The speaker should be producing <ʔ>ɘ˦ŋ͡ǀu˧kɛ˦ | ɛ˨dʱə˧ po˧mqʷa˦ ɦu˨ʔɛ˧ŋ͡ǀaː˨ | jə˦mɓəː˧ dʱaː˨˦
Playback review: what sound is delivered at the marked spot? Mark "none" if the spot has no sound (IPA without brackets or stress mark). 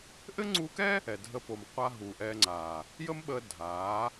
ʔ